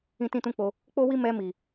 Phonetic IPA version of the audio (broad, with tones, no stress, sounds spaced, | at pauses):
ĩ˦ t ĩ˦ t ũ˦ k͡p o˧ | k͡p o˦ w i˦ m ɛ˧ m i˨